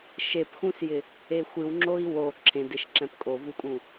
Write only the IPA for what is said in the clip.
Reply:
ʃepxũsjɪ | exʷɨwŋ͡ǁoi̯ wo ǁʰẽdeʃ ǁɛ̃pkʼovukʼũ

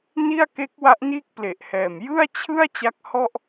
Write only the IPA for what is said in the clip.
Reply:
ni˥˩a̯ke˦˥k̚ wa˦˥ʔniː˥˩k̚ple˨˩ʔhɛː˨˩m jɯ˥˩a̯t͡ɕʰɯ˥˩a̯ t͡ɕa˦˥k̚hɔ˥˩ʔ

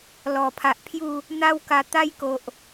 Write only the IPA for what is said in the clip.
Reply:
lɔ˨˩pʰa˨ʔ pʰju˥˧ | n̪a˦wka˧ t̪a˦jko˨ʔ

